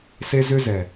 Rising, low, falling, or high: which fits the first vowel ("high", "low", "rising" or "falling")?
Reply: high